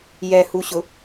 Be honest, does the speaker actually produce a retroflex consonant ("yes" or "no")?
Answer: no